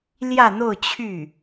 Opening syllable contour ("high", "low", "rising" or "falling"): falling